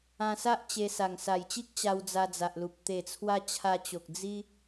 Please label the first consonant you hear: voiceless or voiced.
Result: voiceless